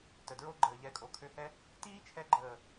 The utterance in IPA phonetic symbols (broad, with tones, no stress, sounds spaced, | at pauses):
t ə˨ d ɹ o˦ ɡ͡ǃ əː˨ ʎ ɛ˨˦ kʼ o˨ kʰ ø˧ h ɛ˦ | t iː˦ t͡ʃʰ ɛ˧ ɡ͡ǃ əː˨